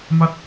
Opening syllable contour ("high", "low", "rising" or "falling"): falling